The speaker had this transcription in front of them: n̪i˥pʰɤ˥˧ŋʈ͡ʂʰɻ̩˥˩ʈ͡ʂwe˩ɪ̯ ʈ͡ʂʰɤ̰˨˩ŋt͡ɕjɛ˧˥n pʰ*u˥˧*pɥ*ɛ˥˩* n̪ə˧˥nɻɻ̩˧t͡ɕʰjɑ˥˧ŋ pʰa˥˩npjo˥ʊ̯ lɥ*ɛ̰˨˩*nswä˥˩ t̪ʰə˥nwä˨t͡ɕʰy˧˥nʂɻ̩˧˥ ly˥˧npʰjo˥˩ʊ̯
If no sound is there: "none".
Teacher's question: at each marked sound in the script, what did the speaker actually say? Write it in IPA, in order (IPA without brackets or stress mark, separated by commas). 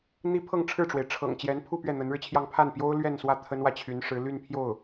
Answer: u˥˧, ɛ˥˩, ɛ˥˧